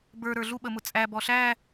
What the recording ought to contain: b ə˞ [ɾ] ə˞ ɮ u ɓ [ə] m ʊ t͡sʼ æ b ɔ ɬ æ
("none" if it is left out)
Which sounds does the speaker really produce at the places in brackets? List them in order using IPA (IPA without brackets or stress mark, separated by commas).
ɾ, ə